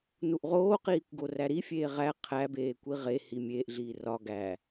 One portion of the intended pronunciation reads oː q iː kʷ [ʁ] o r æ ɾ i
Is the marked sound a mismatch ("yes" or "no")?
yes